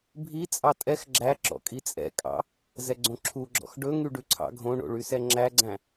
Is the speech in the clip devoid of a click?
no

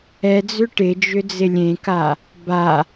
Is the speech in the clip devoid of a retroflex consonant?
no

